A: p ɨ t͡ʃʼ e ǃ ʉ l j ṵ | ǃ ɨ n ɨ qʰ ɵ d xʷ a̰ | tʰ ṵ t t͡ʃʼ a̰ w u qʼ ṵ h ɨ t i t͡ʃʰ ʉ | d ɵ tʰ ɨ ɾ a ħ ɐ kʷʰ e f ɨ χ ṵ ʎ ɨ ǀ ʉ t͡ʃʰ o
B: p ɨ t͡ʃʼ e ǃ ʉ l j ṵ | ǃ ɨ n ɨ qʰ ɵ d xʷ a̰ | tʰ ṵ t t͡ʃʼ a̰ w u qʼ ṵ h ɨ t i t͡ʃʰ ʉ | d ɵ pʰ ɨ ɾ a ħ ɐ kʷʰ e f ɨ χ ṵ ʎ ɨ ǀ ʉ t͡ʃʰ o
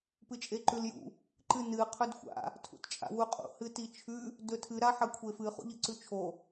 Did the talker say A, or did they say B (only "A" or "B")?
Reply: A